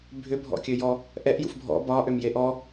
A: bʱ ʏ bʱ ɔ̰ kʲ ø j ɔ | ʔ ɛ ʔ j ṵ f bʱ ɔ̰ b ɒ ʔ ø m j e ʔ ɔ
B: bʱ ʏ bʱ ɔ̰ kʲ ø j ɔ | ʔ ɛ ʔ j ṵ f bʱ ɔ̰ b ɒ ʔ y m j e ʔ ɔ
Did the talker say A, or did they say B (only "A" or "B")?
A